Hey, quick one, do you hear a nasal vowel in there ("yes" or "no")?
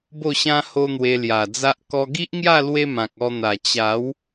yes